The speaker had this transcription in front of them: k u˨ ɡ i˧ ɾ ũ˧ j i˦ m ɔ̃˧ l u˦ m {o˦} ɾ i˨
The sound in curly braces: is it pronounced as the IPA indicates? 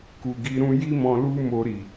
no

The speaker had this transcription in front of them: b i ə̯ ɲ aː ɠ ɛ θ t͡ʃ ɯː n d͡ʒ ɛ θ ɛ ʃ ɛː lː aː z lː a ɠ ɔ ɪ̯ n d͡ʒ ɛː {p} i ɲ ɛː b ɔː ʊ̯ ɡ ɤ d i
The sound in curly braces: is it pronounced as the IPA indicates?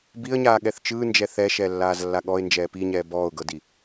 yes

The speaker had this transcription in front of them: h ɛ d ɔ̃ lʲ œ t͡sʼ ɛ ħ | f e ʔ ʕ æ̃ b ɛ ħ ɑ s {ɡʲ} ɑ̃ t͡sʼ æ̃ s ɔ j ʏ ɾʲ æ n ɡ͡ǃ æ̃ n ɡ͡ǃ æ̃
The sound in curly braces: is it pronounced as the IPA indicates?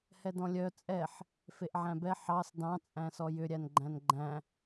no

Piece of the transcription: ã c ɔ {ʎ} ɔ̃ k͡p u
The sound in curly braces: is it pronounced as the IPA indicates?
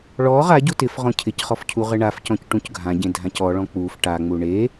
no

